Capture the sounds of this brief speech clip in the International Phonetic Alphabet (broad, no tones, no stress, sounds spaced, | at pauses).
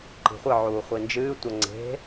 ǃ i̤ χʷ ɨ ʕ uː χʷ i n d͡ʒ ɨː tʷ ɐ ŋ͡ǀ e̤